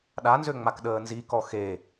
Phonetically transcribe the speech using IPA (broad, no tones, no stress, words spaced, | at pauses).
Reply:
ɗanzøŋ͡mak ɗəːnzikɔ xe